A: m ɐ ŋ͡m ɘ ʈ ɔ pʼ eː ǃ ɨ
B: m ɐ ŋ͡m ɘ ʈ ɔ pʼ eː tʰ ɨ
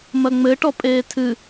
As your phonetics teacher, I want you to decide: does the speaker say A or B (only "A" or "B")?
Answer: B